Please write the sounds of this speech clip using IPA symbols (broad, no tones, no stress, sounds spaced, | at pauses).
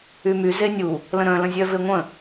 y m y z e nʲ u | l ə̃ ɾ œ̃ l ə̃ zʲ œ v e ŋʷ ə̃